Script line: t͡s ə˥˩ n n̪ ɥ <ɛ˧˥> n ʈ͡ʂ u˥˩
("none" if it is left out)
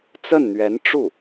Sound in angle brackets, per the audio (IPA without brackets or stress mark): ɛ˧˥